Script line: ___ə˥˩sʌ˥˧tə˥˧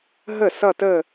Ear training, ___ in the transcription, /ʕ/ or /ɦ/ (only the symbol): ɦ